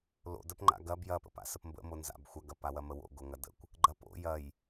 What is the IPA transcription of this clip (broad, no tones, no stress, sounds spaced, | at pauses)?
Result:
l o̰ d ə p ŋ͡ǃ a̰ ɡ ɐ b j ɐ p ə̰ p a̰ s ə p m b ə̰ m o n z a̰ b xʷ ɐ ɡ ɐ p a w ɐ m ə w o̰ ɡ o ŋ ɐ d ə̰ kʷ | ɡ͡ǃ ɐ p o̰ j ɐ j